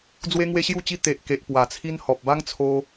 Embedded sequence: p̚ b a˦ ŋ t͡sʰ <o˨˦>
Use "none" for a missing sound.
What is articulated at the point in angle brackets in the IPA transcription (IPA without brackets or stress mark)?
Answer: o˧